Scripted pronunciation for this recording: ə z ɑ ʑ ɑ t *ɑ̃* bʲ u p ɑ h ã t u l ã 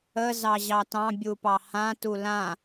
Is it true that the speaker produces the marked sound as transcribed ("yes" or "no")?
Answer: yes